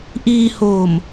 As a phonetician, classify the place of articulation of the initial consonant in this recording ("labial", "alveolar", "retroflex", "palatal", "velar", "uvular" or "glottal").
glottal